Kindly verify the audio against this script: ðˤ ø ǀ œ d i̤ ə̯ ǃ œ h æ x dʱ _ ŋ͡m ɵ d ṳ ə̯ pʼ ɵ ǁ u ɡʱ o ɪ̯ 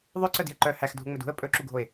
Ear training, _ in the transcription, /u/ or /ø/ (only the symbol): u